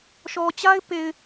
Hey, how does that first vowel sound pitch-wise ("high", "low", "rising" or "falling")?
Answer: low